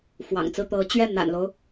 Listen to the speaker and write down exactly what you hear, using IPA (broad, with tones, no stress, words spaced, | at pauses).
fwɑ̰˨˩ŋt͡sɹ̩˥˩t̪ɤ˧˥ t͡ɕɥɛ˥˩n̪a̰˨˩nlo˦ʊ̯